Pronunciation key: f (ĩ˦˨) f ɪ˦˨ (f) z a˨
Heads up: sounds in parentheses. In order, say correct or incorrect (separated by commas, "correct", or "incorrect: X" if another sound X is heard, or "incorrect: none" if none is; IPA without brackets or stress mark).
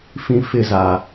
incorrect: ĩ˦, incorrect: none